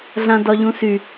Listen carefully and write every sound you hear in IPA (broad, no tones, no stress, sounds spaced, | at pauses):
ɮ ã d ɒ ʎ ũ s y